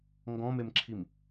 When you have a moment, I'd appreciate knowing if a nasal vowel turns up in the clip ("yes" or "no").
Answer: yes